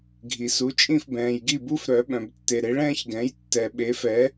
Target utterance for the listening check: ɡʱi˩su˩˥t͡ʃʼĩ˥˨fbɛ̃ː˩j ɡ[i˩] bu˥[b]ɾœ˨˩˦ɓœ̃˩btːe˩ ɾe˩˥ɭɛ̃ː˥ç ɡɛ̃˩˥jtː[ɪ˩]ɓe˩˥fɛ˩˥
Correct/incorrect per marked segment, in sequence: incorrect: i˥˨, incorrect: f, incorrect: ɛ˩

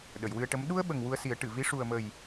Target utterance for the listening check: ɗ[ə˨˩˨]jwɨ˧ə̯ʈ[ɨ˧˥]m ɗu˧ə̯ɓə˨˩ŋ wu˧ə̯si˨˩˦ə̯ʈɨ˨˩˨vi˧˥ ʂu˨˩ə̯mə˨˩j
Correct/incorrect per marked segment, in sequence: correct, incorrect: ə˧˥

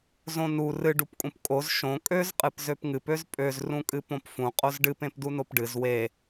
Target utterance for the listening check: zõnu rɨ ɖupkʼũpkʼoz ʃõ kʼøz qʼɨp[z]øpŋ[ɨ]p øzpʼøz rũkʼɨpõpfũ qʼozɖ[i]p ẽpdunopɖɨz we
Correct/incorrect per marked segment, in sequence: correct, correct, incorrect: ɨ

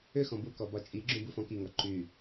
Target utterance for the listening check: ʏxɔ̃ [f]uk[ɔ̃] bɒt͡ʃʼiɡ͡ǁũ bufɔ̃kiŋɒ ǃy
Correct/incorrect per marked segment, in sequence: incorrect: b, incorrect: ɔ

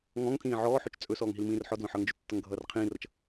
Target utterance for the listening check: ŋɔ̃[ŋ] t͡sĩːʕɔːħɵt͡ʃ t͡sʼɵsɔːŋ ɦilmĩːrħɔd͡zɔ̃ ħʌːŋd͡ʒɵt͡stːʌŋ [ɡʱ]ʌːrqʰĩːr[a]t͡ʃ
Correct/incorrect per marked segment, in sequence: correct, correct, incorrect: ʌ

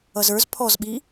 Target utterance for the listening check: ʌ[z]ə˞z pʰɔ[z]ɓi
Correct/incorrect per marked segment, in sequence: correct, correct

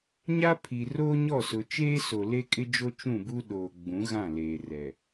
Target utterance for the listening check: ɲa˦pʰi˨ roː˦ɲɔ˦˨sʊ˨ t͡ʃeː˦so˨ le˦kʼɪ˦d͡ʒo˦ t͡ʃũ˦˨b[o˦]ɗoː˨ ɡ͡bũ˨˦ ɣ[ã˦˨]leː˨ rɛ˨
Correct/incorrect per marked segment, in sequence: incorrect: u˦, correct

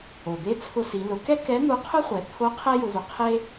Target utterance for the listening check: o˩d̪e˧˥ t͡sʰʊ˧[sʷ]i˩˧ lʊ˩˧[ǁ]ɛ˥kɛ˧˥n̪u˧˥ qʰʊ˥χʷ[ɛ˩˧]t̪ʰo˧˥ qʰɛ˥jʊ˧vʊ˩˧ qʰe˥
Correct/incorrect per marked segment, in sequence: incorrect: s, incorrect: k, correct

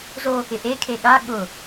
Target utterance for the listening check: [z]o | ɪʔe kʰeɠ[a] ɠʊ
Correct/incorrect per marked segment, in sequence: correct, correct

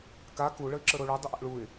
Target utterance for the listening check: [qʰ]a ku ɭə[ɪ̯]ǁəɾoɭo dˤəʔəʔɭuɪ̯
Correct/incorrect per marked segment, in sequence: incorrect: k, correct

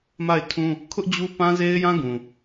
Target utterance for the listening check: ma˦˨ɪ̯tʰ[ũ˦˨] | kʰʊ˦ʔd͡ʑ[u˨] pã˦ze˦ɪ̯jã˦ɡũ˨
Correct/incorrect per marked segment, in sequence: incorrect: ũ˦, incorrect: u˦

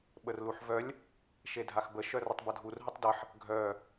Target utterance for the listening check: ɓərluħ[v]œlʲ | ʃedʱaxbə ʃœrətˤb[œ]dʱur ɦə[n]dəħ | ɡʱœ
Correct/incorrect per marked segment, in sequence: correct, incorrect: ə, incorrect: tˤ

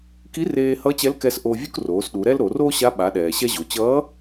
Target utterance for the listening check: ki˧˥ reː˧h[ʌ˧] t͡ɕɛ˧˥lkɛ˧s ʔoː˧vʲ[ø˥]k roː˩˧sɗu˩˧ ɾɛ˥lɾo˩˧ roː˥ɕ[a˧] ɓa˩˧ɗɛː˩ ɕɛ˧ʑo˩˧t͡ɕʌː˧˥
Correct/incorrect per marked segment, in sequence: incorrect: ʌ˧˥, incorrect: u˥, incorrect: a˧˥

